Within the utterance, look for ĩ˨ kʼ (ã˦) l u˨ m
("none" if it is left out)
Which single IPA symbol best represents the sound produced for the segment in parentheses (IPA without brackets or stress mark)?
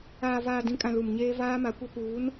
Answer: ã˨